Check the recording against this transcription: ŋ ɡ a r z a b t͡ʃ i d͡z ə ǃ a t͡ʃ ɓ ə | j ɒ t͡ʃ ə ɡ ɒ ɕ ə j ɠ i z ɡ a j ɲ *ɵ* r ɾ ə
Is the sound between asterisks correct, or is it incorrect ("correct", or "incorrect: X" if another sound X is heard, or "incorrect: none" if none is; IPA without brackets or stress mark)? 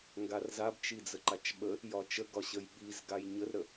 incorrect: ə